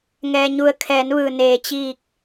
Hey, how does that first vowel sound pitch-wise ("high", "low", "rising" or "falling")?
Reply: low